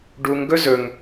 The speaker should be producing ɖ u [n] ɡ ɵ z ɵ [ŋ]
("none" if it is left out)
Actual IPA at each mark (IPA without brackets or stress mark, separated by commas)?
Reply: ŋ, ŋ